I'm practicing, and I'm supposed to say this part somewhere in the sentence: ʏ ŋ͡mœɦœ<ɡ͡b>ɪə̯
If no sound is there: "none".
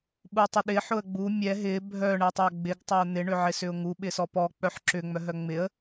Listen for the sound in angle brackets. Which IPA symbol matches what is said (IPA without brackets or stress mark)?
ŋ͡m